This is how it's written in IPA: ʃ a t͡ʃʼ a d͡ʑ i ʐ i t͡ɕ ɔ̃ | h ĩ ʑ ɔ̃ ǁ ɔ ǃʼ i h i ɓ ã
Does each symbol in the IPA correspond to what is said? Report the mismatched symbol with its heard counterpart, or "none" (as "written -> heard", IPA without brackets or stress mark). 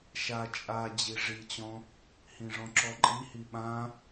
ʑ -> ʐ